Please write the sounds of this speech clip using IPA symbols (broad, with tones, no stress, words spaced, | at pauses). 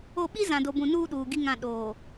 o˦˨ ɓi˦ zã˨do˨bũ˨ nuː˦ɗuː˨ ɡi˦ŋã˦˨ ɗoː˨